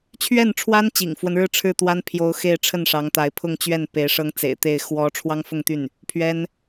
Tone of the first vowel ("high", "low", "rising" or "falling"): falling